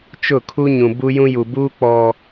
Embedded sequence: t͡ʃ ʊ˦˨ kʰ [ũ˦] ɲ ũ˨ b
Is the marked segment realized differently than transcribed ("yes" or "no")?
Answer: yes